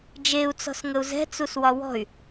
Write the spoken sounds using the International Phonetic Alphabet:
d͡ʒ e u̯ t͡s ɔ̤ s ŋ ə u̯ z ɛ̤ t͡s u s w ɒ w ɔ̤ y̯

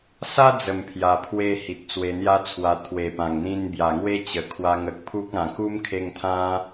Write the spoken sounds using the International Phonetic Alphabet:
s a˦ d͡z ə˨˩ m pʰ j a˧ pʰ w e˦ h i˨ t̚ t͡s w e˧ n̪ j a˦ t͡sʰ w a˧ t̪ʰ w e˨˩ p ã˨˩ ŋ n̪ ĩ˧ n b j a˨˩ ŋ w e˦ t͡ɕ ə˨˩ kʰ w a˧ ŋ ə˨ k̚ pʰ u˦ k̚ ã˨˩ k u˦ m kʰ e˧ ŋ t̪ʰ ã˦

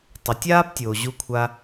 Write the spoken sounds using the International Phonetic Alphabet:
tˤ e˩ tʲ aː˥ p tʲ oː˩ ʑ u˧ kʷʰ a˧

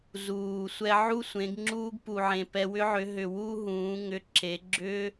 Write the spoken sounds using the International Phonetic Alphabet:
z uː˨ sʷ ɛ˧ ʕ u˦ sʷ ẽ˨˦ ɡ ŋ͡ǁ uː˦ ɡ p u˨ ʕ ẽ˨ p ɛ˧ w ʏ˦ ʕ ʏ˨˦ ɦ ʏ˨ w u˧ ɦ ũː˨˦ ŋ ʏ˧ ǁ e˨˦ ɡ͡ǁ ʏ˦

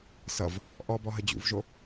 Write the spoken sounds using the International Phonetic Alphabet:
s ʌ v | ʔ ɔ b ɔ ɦ ə d͡ʑ ṵ v ʒ o

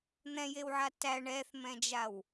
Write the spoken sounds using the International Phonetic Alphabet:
n̪ ɛ̃ j e w ʕ a t æ ɳ ɛ θ m ɛ̃ d͡ʒ a w

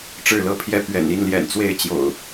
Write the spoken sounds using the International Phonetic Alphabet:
ʈ͡ʂ ɻ̩˥˨ l ɤ˦ pʰ j ɛ˦ p ɥ ɛ̰˨˩ n i˥˨ n l j ɛ̰˨˩ n t͡s w e˥˨ ɪ̯ t͡ɕ j o̰˨˩ ʊ̯

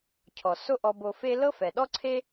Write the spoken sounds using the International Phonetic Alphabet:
cʰ ɔ˩ s o˥ ʔ ɔ˧ b o˧ f e˥ l ɤ˥ f ɛ˩ ɗ ɔ˥ ǀʰ e˥

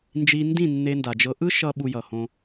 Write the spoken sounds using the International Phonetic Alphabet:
n d͡ʒ i˧ n d ĩ˦˨ nː e˧ n d a˨ d͡ʒ ɤ˧ ʔ ɯ˦ ʃ ʌ˧ ɓ u˧ j ʌ˨ h õ˧

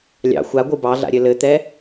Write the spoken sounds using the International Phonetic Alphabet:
lʲ ɑ̰ xʷ a ɡʷ ɯ b ɑ ɮ a̰ ɾʲ ɘ l ɘ t̪ ɛ

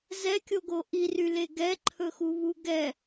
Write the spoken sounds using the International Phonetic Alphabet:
z ɛ kʲ o ɡ o ʔ i r y l e ɡ ɛ ǃʰ ɵ x u β u ɡ ɛ

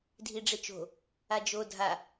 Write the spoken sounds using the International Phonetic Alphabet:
dʱ i ɖ͡ʐ e t͡ʃ o̤ | a d͡ʒ o dʱ a

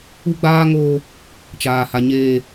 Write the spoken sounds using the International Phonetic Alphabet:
u˦ ɡ͡b aː˦ ŋ oː˦ | t͡ʃ aː˦ h a˦ ɲ eː˦

